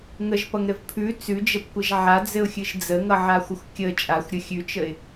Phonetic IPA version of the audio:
ŋ ə ʒ p ʌ ŋ ɾ ɘ v pʰ ʉ t͡s ʉ d͡ʒ ə p kʷ ɘ ʒ ʕ a d͡z ɘ ʊ̯ xʲ ɨ ʒ d͡z ə ŋ ʌ ʕ a xʷ ə xʷ kʲ ə t͡ʃʼ a xʷ ɾʲ ə xʲ ʉ t͡ʃ ə ɪ̯

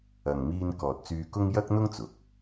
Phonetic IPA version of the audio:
ɐ˨ ŋ m iː˧ n k ɔː˨ t̚ t͡s yː˧ k ʊ˥ ŋ j ɐ˥ k̚ n̪ ʊ˥ ŋ t͡s ʊ˨˥ k̚

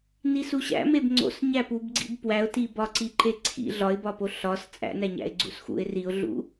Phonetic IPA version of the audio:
n i s u ɕ æ̰ m e b ŋ͡ǀ o̰ s ɲ æ p u b ɡ͡ǀ ḭ b p w æ ʊ̯ t i b ɒ ǀ i ǃ e ǀʰ ḭ ɮ ɒ ɪ̯ b ɒ p o ɬ ɒ s t͡sʼ æ̰ n æ ɲ æ̰ ɪ̯ ɡ͡ǀ ṵ s x ṵ ɪ̯ r i ʊ̯ ɮ ṵ

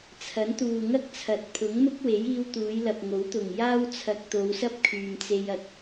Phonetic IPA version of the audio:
t͡sʰ ɐ˨˥ n t̪ uː˨ ŋ ɐ˥ k̚ t͡sʰ ɐ˨˥ t̚ pʰ ʊ˨˥ ŋ m ʊ˥ k̚ w e˨˥ j iː˧ w t̪ uː˨˧ j l ɐ˨ p̚ ŋ o˨˥ w t̪ ʊ˨˩ ŋ j aː˥ w t͡sʰ ɐ˧ k̚ t̪ o˨˧ w s ɐ˥ p̚ kʰ yː˨ m t͡s e˧ j ɐ˨ k̚

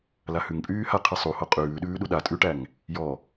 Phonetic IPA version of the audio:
l a h ʉ ŋ pʼ yː h a qʰ ɨ sˤ u h o qʼ ʉː ɗ ʉː ɗ u ɗ a tʼ ʉ ʈ æ ŋ | j ɔ

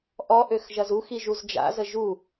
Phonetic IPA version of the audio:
ʔ ɔ ʔ ø x ʒ ɐ z u x i ʒ u z d͡ʒ a̰ z ə ʒ u

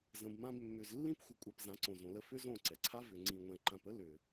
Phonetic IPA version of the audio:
z ə̃˨ b m ã˧ b mː ʏ˨ z lː ĩ˦ p xʷ ə˨ kʷʼ a˧ p z ã˨˦ ǀ õ˨ z õ˨ l ə˧ f ʏ˦ z õ˦˨ ǀ ɛ˨ ǀʰ a˦ v ʏ˨ ŋ͡ǀ ĩ˨ ŋʷ ɛ̃˨ ǃ ã˨ p ə˦ l ʏ˨

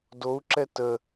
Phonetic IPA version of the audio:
d o u̯ ǁ ɛ t ə

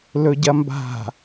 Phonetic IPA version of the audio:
l ɵ ɟ ɐ m b a̤

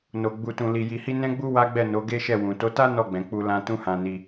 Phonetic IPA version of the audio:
n o˧ ɡ͡b u˧ t ũ˧ l i˧ j i˧ h i˦ n ɛ̃˦ ɡ͡b u˦ w a˦ ɡ͡b ɛ˦˨ n o˨˦ ɡ e˦ ʃ ɛ˦˨ w ũ˨ t o˨˦ t a˦ n ɔ˦˨ ɡ͡b ɛ̃˨ k͡p u˧ l ã˧ t ũ˦ h ã˧ n i˧

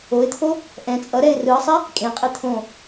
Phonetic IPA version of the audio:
o ɪ̯ t̪ʰ o | ʔ ɛ̃ t͡sʼ ʌ ɾ ɛ ɪ̯ r ɯ ə̯ sˤ ɛ | kʼ ẽ qʼ e t̪ʰ õ

